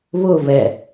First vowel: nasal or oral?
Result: oral